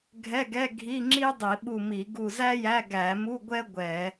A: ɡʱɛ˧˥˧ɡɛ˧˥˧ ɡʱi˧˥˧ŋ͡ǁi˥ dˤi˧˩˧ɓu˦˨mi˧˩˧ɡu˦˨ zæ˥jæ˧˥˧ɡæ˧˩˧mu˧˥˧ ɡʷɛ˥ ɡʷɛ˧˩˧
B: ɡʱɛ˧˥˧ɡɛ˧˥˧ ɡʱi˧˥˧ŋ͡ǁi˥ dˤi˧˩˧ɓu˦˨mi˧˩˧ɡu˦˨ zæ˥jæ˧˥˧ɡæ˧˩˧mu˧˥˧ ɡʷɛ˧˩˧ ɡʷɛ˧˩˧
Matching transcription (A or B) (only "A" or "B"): A